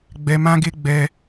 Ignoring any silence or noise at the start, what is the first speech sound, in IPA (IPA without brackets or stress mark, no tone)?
ɡ͡b